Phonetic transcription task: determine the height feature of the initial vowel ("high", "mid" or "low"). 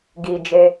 high